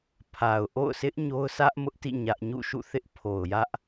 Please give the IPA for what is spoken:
pʰ a˨ ʊ̯ ʔ o̰˦˨ ʊ̯ sʰ ɪ˦ ʔ ɲ o˦ ʊ̯ sʰ ä˦ ʔ m ʊ˦ ʔ t ḭ˦˨ ɲ ä˦ ʔ ɲ ṵ˦˨ ʃ ṵ˦˨ θ ɪ˦ ʔ pʰ o˨ ʊ̯ j ä˦ ʔ

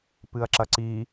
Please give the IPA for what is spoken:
p ɨ ɐ̯ ǁ ɐ ǀ i

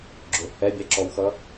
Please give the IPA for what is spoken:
ɡ͡ǁ ʊ h ɛ bʲ æ ǁ ɔ w x ʌ

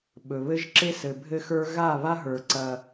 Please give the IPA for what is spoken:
ɓ ɵ˨ β ɘ˦ ʒ ǁ e˦ s ɘ˨ bʱ ɘ˧ x ə˞˧ ɣ a˦˨ β a˦ ɦ ə˞˨ ǀ ɐ˧

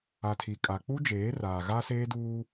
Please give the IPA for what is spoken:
a˨ tʰ i˨ kʼ a˨ k͡p u˦ d͡ʒ eː˨˦ r aː˨ ɣ a˦ s eː˦ d uː˦

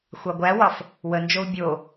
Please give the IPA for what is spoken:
xʷ ɑ ɡʷ æ w ɒ f | w ə n d͡ʒ o u̯ bʲ o

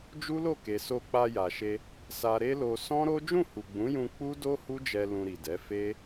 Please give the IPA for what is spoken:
d͡ʒ u˦ l o˦˨ k e˨ s o˧ k͡p a˧ j a˨ ʃ e˧ | s a˧ ɾ e˦ l o˧ s ɔ̃˦ ɾ o˦ d͡ʒ ũ˦˨ h u˨ ɡ͡b ũ˨˦ j ũ˧ k͡p u˦ d o˦ h u˦ d͡ʒ ɛ˧ l ũ˧ ɾ i˨ d ɛ˨˦ f e˦

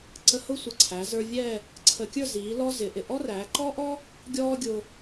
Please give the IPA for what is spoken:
ǀ ə˧ h ʊ˥˧ sʷ ə˧˩ ǀʰ æ˩˧ z ə˞˧ vʲ ɛ˥˧ | ǀʰ ə˧ kʲ ə˞˥˧ z iː˩˧ l ɔ˥ z ɪ˩˧ ʔ ɪ˧˩ ʔ ɔ˥ r æː˩˧ ǃ ɔ˥ ʔ ɔ˥ | ɡʲ ɔː˥ ɡʲ ʊ˧

